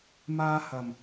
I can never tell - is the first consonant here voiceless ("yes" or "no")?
no